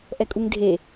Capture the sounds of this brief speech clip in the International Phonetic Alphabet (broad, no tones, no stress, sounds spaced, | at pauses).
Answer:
ʔ ɛ kʼ u ŋ dʱ e